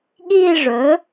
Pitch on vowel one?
falling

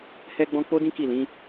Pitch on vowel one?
high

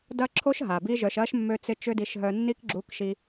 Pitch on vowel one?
high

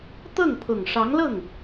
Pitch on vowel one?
falling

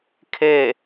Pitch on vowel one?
falling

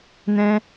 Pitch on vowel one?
high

